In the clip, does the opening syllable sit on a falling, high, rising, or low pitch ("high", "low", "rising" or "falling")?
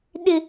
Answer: high